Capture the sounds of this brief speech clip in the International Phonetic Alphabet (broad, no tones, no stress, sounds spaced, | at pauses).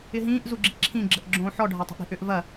ɪ ɦ ĩː ʔ z u ɡ͡ǁ i ǁʰ ĩ ɡ͡ǁ ə ʔ ɡ͡ǁ õː ħ ɔ ɖʱ a tˤ o̤ ʔ ɾ i̤ ʔ ʏ ʔ v ɐ